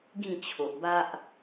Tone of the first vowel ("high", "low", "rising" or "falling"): falling